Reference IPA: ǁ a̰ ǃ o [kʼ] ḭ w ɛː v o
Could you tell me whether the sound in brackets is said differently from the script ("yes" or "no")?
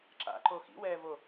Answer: yes